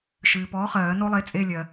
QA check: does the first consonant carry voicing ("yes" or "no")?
no